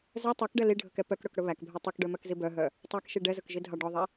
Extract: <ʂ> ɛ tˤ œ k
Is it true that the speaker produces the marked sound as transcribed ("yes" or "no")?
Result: no